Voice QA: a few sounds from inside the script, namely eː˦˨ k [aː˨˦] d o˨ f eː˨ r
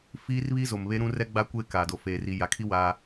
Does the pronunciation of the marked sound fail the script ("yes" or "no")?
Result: yes